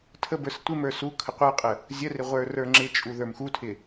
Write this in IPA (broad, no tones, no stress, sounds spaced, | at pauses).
tʰ ə b ə˞ s tʷ ɪ m ə˞ s u kʰ ə qʷ ə˞ qʼ ə | zʲ ə r ɪ ʁʷ ə˞ r ə˞ ŋ͡ǁ ɪ t͡ʃʼ u ð ə˞ m x u tʰ ɪ